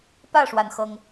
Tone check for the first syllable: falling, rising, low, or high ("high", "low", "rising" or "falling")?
falling